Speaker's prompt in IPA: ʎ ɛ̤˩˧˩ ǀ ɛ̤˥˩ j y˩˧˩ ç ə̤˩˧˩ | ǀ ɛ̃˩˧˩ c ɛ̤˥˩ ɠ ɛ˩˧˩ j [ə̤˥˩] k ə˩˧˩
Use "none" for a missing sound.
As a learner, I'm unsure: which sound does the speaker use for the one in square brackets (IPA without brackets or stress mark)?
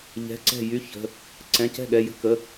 ə̤˥˩